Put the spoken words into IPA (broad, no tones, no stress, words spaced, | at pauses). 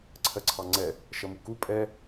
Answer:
ǀʰɜǀʰɑŋ͡ǀɛ | ʃʌmuku pʼɛ